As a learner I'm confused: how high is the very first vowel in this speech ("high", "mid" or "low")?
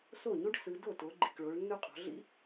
mid